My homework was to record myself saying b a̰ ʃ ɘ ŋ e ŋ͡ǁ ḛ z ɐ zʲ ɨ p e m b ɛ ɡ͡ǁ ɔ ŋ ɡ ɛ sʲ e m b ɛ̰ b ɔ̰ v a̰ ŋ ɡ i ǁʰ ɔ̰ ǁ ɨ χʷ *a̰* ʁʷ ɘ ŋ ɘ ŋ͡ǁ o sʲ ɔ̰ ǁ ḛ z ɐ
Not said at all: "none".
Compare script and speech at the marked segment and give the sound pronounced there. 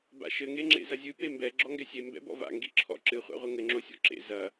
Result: a̰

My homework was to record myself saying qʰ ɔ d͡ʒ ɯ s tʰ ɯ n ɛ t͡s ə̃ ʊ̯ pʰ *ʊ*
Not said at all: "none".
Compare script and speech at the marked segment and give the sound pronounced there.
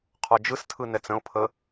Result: ə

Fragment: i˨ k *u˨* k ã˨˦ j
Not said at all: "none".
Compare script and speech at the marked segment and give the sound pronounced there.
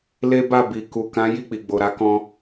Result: u˨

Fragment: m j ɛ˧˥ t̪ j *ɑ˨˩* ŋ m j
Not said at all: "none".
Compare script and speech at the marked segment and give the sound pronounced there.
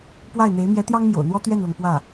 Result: ɑ˥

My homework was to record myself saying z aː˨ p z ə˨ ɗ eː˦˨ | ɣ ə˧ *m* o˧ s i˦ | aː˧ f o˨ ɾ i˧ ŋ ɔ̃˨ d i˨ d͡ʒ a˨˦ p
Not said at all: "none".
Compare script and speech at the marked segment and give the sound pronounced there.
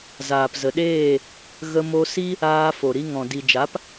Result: m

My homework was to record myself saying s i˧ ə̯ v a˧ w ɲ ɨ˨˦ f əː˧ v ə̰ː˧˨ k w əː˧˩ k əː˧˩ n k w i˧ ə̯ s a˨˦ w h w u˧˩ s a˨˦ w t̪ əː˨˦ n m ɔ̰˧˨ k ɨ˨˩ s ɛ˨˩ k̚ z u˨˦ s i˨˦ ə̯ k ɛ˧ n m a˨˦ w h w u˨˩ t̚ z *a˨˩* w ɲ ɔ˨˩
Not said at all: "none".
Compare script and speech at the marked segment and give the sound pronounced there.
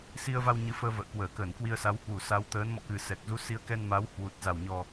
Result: a˨˩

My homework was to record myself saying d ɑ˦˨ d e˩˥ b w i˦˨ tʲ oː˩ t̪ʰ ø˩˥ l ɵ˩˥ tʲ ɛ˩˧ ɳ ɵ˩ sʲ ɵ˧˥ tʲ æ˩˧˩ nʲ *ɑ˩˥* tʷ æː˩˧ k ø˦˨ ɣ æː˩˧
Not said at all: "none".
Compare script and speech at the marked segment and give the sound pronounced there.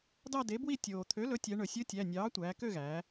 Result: ɑː˩˥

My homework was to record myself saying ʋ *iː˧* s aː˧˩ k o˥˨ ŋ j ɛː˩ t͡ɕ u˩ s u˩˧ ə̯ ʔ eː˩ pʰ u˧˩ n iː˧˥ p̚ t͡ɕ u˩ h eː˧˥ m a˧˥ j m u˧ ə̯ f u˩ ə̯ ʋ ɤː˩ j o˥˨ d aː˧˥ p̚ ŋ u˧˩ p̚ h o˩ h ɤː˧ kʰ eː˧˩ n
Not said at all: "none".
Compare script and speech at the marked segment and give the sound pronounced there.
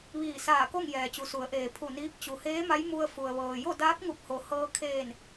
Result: iː˧˩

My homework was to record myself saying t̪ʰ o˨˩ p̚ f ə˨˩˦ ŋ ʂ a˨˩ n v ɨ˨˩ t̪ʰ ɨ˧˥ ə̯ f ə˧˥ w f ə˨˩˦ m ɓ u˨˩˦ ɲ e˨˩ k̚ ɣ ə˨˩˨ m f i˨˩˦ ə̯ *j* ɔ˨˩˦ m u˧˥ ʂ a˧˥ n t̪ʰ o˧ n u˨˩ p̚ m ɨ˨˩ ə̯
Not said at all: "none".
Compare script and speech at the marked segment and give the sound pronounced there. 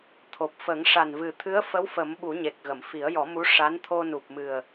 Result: j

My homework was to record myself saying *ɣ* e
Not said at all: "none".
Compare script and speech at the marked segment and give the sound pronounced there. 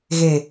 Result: ɣ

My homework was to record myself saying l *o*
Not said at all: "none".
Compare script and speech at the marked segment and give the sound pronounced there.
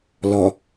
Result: ɔ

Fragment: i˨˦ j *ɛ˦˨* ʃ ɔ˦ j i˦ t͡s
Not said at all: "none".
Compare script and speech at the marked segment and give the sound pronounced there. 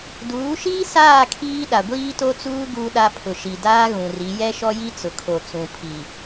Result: ɛ˦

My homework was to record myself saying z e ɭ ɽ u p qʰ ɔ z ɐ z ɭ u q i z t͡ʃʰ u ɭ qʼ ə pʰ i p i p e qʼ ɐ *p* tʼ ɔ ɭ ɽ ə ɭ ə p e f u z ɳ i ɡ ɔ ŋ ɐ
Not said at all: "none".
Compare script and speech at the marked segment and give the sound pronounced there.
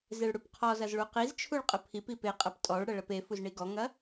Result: p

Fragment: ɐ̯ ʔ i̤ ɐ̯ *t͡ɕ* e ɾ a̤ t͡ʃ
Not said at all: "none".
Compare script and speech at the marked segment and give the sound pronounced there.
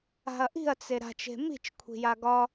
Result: t͡s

